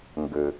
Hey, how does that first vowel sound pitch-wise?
low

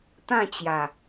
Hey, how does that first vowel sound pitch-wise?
falling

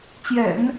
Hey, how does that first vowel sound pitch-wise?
low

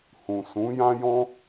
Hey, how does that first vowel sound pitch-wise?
low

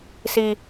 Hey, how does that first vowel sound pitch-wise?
high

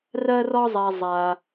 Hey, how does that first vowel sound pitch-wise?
high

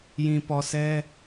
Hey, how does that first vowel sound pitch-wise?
low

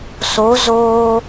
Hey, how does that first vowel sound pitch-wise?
rising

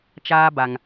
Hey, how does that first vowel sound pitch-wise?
high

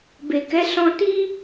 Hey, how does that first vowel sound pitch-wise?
low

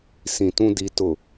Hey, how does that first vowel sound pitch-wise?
low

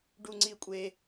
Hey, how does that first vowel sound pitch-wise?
high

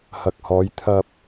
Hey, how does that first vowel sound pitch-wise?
low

